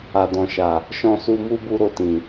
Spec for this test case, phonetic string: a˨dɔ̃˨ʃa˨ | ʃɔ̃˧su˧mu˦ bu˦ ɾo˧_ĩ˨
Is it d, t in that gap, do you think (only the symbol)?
t